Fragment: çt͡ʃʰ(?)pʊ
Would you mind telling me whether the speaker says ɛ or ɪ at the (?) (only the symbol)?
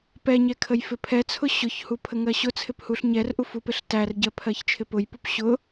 ɪ